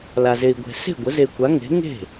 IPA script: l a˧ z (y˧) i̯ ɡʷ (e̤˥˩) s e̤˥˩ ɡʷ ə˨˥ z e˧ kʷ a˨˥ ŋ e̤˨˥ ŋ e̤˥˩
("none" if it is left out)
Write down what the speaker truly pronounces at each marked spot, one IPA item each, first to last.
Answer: e˧, e̤˧

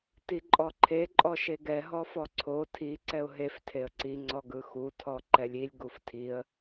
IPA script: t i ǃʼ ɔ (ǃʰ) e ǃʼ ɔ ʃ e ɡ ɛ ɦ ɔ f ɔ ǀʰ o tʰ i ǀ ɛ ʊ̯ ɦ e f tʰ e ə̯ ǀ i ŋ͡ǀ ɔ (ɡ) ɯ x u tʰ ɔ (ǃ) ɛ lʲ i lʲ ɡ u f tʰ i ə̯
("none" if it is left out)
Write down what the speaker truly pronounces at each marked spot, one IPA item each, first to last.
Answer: ǃʰ, ɡ, ǃ

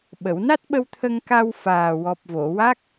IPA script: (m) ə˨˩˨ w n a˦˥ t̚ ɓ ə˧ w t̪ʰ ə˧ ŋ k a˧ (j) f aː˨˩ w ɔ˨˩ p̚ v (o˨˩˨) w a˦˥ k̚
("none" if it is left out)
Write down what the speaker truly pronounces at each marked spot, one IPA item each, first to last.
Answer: ɓ, w, o˨˩˨

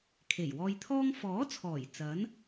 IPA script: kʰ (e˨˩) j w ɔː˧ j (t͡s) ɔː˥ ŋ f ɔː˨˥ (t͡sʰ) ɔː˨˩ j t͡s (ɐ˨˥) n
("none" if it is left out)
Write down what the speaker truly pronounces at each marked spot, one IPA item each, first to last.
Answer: e˨˩, t̪ʰ, t͡sʰ, ɐ˨˥

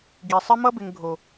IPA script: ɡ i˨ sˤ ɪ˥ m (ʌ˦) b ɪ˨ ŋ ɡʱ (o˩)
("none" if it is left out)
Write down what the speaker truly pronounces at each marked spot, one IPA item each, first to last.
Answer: ʌ˦, o˩

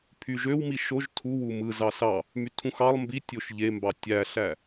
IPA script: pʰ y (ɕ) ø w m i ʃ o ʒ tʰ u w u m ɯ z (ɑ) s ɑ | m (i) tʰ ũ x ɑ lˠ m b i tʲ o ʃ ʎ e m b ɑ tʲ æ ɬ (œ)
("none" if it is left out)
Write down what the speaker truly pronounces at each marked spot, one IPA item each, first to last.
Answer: ʒ, ɑ, y, æ

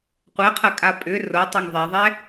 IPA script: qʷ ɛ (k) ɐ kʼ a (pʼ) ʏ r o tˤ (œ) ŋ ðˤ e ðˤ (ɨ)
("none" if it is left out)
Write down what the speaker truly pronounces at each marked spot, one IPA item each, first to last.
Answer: qʰ, pʼ, œ, ɛ

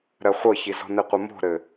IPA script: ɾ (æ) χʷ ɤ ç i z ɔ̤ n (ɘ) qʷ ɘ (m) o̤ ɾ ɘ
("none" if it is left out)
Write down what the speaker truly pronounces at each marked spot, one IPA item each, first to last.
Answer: ɜ, ɘ, m

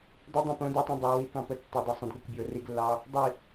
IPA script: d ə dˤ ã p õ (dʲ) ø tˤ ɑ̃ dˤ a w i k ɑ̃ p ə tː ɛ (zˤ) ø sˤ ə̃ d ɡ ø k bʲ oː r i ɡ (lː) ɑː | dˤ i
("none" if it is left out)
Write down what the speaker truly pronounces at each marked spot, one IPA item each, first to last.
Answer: d, dˤ, lː

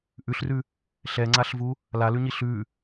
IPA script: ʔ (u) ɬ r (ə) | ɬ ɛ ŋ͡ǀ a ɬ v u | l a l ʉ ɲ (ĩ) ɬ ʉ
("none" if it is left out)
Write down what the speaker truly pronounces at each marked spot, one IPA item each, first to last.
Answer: ʉ, ʉ, i

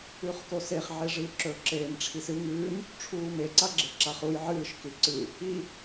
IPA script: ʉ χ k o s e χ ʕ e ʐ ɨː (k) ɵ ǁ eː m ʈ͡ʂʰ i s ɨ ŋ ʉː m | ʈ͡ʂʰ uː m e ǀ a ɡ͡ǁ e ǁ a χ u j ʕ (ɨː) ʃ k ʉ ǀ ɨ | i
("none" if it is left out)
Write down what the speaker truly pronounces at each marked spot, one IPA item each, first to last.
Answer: ǁ, ɨː

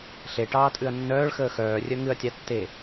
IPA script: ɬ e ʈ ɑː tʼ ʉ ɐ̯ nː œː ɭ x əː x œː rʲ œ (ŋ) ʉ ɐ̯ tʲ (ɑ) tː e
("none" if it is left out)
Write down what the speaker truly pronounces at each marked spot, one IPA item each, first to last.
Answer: ŋ, ɑ

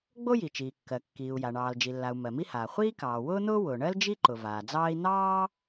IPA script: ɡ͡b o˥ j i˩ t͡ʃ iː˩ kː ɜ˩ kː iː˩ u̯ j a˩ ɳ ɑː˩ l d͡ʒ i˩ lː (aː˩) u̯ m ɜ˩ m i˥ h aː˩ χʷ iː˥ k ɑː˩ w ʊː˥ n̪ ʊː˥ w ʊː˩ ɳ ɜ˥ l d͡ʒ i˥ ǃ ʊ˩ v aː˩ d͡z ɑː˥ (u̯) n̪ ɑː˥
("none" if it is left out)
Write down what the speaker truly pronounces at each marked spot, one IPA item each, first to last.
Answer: a˩, i̯

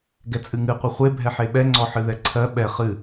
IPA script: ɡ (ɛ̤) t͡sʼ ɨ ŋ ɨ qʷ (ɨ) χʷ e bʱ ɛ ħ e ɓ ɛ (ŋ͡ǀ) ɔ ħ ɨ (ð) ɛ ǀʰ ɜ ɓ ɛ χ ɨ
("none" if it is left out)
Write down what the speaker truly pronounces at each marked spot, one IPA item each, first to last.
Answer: ɛ, ɨ, ŋ͡ǀ, ð

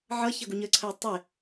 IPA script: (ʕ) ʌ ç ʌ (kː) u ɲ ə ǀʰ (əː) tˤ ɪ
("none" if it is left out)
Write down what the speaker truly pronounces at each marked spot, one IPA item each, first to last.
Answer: ʕ, ɡ, əː

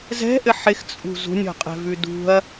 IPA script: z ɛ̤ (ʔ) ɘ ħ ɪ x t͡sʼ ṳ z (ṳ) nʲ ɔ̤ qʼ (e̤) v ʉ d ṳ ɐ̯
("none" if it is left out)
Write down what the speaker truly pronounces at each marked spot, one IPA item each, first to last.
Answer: ʔ, ṳ, ɛ̤

